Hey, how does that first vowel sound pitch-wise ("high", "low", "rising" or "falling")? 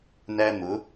high